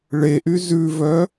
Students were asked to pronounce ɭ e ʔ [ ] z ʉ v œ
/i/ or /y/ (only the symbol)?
y